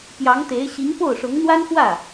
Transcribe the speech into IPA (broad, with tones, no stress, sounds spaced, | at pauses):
p j ɑ˧˥ ŋ t̪ e˧˥ ɪ̯ ɕ i˧˥ ŋ p o˥˩ ʊ̯ ʂ ʊ˧˥ ŋ n̪ w a˥ n x w ä˥˩